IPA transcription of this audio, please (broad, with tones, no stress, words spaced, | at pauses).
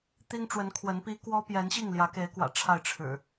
t̪i˦ŋʈ͡ʂwə˨˦n kʰwə˨˦npi˦ kwɔ˦pjɛ˨˦nɕi˥˨ŋ ljä˨˦ke˨˦ɪ̯kwä̰˨˩ ʈ͡ʂʰa˥˨ɪ̯ʈ͡ʂʰɻ̩˨˩